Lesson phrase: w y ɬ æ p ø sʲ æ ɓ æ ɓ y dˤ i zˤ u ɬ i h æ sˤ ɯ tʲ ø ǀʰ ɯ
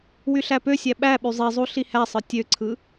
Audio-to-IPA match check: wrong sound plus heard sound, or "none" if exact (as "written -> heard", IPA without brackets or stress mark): dˤ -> zˤ